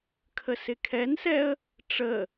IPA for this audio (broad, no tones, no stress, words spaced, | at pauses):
kʰəsɪkʰɛnsɛə̯ | ʈ͡ʂə